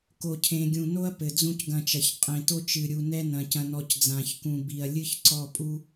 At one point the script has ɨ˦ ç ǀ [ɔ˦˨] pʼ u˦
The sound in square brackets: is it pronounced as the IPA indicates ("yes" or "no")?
yes